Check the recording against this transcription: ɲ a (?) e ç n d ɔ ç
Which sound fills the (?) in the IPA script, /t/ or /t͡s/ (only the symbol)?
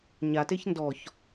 t